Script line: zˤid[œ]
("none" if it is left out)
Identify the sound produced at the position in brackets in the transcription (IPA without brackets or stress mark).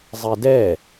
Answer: ɛ